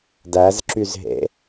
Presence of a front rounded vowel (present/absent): present